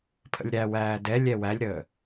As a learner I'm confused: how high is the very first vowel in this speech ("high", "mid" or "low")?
mid